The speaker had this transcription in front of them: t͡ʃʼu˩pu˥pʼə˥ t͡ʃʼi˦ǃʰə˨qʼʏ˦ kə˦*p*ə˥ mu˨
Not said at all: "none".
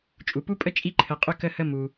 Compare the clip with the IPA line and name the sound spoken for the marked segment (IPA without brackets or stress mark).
h